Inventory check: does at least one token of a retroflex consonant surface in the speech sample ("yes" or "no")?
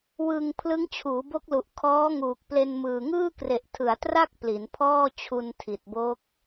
no